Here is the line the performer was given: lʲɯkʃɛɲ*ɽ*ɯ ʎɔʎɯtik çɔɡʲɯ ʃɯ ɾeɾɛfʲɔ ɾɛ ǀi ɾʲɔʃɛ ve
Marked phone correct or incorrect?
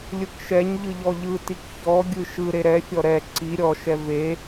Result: incorrect